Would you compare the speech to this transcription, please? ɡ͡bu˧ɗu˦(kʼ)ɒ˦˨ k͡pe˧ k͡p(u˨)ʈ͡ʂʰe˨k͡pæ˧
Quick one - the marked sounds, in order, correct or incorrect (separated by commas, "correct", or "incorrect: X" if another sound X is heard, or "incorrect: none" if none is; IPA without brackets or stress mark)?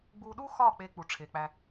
incorrect: x, correct